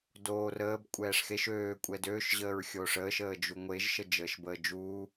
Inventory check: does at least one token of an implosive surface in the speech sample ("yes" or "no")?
no